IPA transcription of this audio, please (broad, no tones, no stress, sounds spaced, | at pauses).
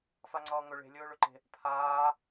f a ŋ͡ǀ ʌː ŋ ɵ ɭ e̤ lʲ ɵː ɭ ɵ ǃ e̤ | pʰ aː